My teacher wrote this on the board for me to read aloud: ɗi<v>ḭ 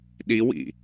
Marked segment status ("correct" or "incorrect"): incorrect